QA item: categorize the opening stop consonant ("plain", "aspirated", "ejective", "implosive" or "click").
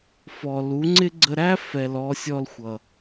click